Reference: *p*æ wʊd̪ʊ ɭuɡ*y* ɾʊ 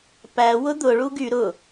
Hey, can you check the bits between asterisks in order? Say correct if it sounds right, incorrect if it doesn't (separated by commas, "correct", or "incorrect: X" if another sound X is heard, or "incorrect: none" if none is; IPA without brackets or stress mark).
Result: correct, correct